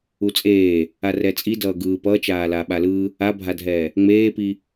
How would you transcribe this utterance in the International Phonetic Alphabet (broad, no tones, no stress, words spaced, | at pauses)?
ut͡sʼeː | arɛt͡sʼi dʌːɡɯː pʌːt͡ʃaː laːɓalɯː | abʱadʱɛː | ŋ͡meːpi